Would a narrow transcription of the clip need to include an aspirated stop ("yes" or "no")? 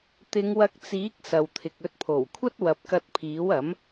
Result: yes